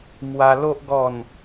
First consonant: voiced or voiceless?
voiced